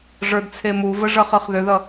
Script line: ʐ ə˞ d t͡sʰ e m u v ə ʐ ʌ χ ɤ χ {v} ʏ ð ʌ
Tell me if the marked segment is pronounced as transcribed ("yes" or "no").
no